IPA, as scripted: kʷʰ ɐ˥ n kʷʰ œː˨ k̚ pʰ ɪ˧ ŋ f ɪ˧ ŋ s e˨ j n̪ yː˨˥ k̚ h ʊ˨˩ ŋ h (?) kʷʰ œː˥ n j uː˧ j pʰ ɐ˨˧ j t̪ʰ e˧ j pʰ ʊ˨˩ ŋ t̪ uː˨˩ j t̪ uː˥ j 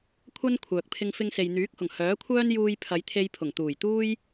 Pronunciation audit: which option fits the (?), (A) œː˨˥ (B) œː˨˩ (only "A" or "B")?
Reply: A